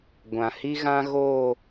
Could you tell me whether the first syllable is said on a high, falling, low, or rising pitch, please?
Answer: low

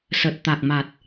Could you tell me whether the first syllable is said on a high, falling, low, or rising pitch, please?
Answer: low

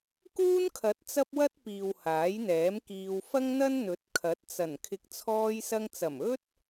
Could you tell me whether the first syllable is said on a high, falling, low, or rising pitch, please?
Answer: high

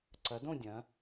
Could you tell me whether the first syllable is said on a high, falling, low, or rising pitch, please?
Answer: rising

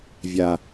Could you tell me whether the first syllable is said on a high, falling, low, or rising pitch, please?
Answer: low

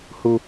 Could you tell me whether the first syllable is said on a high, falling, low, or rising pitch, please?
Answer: high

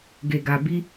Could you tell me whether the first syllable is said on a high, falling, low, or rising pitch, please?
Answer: low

